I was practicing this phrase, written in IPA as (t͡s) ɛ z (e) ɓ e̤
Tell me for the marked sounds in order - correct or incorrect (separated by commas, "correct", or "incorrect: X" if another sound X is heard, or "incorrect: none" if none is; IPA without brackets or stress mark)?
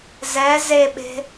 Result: incorrect: z, correct